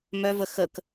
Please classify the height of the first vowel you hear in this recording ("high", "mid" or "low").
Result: mid